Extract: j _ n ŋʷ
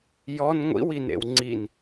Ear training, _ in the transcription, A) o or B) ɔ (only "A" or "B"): B